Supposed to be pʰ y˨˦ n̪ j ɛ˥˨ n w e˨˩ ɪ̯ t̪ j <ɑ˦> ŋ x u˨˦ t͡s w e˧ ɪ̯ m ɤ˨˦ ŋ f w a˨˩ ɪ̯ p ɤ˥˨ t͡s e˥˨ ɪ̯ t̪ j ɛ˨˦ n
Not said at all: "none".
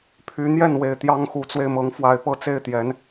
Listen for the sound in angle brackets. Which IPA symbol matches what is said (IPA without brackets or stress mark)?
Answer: ɑ˦